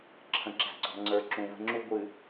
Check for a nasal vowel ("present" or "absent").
present